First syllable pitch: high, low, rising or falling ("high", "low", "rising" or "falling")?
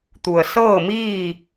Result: low